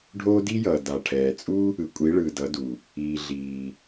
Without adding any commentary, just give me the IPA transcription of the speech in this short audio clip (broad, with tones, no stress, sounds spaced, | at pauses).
ɖʱ oː˦ d i˦ j ʌː˨ d a˨ ʈʰ ɛː˨ t͡sʼ u˦ | ɯ˨ kʷʼ i˨˦ ɭ ɯː˨ d ʌ˨˦ d u˨ | iː˨ ɮ iː˨